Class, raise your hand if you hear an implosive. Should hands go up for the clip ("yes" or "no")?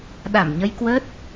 yes